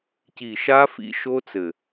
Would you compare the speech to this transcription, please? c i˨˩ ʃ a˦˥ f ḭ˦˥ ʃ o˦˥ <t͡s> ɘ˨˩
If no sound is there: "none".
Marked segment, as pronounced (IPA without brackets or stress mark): t͡s